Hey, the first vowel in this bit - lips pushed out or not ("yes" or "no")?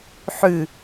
yes